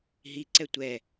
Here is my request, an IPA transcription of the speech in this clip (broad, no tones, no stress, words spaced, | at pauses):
ɦiǀɛ tʷɛ